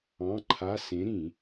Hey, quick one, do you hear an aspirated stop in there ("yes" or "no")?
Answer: yes